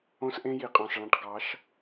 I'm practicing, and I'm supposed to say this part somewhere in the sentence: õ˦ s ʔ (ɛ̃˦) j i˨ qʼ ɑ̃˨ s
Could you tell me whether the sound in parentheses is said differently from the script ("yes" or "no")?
yes